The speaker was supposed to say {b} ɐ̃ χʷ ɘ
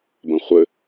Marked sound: correct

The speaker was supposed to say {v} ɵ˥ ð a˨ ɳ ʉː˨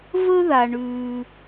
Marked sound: correct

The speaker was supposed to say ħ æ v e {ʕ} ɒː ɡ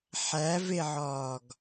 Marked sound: correct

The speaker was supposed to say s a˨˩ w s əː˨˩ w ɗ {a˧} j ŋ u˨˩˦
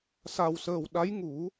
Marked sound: incorrect: a˧˥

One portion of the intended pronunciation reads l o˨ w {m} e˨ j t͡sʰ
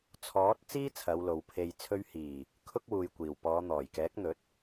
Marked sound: incorrect: pʰ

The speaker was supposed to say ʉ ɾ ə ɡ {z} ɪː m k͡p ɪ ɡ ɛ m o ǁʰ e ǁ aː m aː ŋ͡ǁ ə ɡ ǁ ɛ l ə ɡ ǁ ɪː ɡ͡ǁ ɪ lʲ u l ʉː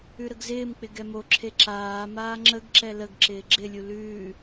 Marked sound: correct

